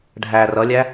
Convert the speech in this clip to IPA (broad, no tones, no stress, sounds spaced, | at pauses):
ɖʱ æ r ʌ lʲ æ